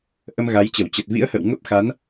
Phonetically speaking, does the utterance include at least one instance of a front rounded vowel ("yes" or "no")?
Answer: no